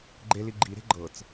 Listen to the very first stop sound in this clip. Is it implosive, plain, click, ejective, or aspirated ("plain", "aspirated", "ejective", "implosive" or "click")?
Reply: click